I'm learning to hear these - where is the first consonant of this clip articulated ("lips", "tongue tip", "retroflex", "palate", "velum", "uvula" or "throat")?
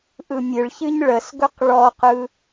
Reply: throat